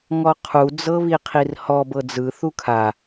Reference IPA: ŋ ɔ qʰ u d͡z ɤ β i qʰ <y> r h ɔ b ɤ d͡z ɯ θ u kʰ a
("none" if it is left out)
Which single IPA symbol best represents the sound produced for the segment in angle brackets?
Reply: i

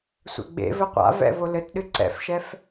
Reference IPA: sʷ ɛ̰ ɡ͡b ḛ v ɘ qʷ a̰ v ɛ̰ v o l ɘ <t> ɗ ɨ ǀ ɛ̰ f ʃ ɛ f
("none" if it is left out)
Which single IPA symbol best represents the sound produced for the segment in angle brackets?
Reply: t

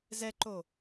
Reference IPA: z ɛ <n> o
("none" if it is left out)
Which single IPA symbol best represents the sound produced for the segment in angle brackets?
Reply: ǃ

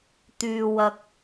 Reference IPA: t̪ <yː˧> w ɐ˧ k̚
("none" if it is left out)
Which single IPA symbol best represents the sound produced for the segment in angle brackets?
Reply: yː˧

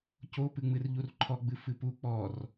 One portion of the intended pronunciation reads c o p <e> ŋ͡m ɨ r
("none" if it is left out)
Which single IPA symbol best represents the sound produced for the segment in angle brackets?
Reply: ɨ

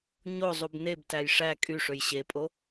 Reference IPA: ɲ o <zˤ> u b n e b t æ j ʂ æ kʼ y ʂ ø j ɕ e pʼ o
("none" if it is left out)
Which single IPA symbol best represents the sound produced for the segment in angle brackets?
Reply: zˤ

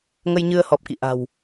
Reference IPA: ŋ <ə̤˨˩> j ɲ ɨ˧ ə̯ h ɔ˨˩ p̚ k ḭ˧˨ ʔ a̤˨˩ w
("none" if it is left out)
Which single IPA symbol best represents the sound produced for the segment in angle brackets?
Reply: ə˧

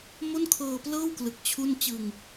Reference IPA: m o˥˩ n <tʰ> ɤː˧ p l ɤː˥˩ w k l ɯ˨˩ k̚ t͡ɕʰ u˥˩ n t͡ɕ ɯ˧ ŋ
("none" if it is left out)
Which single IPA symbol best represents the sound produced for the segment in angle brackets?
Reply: kʰ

